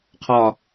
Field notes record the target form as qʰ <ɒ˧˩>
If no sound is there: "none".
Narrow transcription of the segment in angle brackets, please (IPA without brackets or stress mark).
ɒ˧˩